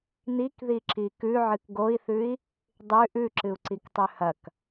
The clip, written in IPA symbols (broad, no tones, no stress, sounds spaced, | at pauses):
n̪ i k ð i ǁ i k ʉ ʕ ɨ k ɡ o i̯ θ ʉ i̯ | dˤ ʉ ʔ ʉ ǁ ɨ u̯ ǀ i k tˤ ʉ h ɐ k